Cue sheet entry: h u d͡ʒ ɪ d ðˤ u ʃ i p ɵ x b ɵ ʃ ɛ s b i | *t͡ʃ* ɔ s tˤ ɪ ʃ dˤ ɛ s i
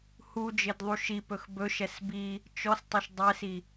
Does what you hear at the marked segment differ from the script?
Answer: no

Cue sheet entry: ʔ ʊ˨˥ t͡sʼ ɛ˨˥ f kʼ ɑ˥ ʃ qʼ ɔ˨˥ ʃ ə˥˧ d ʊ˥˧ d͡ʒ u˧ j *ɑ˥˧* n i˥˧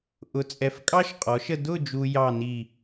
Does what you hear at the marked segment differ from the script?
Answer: no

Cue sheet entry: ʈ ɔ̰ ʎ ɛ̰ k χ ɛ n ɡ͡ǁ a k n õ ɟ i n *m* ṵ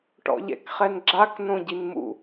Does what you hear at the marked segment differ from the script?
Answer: no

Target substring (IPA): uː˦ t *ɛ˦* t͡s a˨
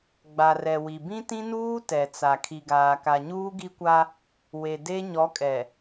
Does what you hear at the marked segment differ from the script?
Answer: yes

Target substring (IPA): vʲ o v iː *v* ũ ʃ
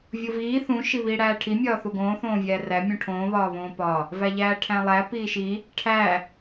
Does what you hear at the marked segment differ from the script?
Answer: yes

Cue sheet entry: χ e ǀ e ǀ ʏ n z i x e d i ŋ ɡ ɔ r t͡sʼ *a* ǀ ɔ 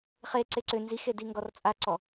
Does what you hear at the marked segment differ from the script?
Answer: no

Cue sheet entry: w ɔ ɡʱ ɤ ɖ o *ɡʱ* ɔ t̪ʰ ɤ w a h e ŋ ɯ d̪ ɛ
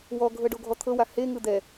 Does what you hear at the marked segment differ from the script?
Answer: no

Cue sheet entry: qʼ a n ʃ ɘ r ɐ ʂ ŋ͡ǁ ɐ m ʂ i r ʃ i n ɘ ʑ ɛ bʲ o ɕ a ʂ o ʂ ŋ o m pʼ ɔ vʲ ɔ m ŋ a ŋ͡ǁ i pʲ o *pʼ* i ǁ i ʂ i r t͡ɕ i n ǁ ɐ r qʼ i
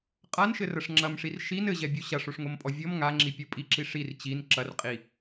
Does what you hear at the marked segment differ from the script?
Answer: no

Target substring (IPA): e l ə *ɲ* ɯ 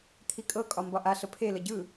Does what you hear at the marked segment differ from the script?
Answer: yes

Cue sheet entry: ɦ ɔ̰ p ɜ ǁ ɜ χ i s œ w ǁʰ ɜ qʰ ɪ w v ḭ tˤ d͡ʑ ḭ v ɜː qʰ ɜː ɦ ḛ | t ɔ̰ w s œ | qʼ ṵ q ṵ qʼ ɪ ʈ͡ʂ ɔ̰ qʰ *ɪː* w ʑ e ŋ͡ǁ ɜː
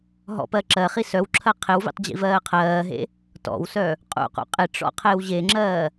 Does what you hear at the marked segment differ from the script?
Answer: no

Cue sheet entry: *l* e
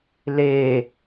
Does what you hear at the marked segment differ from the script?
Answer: no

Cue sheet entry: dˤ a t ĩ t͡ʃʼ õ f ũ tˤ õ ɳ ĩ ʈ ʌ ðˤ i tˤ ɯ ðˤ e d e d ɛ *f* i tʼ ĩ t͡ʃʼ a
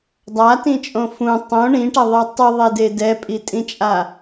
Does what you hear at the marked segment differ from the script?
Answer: yes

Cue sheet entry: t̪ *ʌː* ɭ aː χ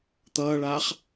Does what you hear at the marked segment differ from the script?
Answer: no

